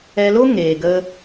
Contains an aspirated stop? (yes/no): no